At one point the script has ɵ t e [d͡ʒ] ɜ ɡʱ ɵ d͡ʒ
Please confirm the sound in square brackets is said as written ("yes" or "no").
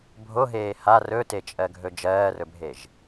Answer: no